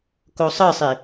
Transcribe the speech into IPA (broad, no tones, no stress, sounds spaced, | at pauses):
k o sˤ ɯ sˤ i